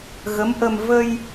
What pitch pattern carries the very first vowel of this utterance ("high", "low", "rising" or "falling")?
rising